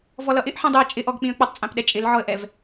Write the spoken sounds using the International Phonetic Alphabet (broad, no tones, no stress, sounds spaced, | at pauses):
v ɔ l ʌ ʔ ɪ ʔ ħ ĩ dˤ u ə̯ t͡ʃʼ ɪ ʔ ɔ ɡ k͡p ĩ ə̯ k͡p ʌ tˤ t͡sʼ æ̃ p ɗ ɛ t͡ʃʼ ɪ l ʕ ɔ ə̯ ʔ ɛ v